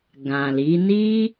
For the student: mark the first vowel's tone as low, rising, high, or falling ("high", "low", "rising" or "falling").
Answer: low